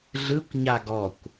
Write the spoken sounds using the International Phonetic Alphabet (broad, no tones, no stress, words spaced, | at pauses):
ɮɯkʷ ɲaɡɔkʷ